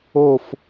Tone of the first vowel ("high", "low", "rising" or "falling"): falling